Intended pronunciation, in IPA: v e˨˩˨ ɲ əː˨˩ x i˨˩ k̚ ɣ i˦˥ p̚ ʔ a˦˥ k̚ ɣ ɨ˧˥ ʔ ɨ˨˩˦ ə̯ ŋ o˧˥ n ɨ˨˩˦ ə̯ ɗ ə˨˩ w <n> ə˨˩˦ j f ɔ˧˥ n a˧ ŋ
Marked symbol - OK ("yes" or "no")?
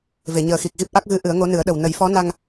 yes